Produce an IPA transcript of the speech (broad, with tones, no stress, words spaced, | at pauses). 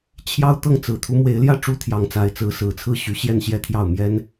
t͡ɕʰjɑ˥ʊ̯ t̪ɤ˥˩ŋt͡sɹ̩˨˩ t̪ʰu˧˥mwe˧˥ɪ̯ljä˥˩ ʈ͡ʂu˥t̪ʰjɑ˧˥ŋt͡sa˧˥ɪ̯ t͡sɹ̩˧˥ sɹ̩˨˩t͡sʰɹ̩˥˩ɕy˧˥ ɕjɛ˥˧nɕjɛ˥˧t̪ʰjɑ˥˩ʊ̯ mjɛ˥n